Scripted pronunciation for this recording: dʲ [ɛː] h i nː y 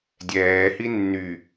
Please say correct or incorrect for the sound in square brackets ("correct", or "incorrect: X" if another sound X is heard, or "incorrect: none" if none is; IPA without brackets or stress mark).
correct